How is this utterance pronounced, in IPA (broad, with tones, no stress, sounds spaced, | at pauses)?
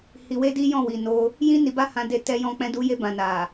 h i˧ w e˦ d i˦ j ɔ̃˦˨ w i˨ n o˧ | j ĩ˦ n i˧ b a˦ h ã˧ d e˧ t ɛ˧ j ɔ̃˧ k͡p ɛ̃˧ d u˧ j e˧ b ã˨ n a˨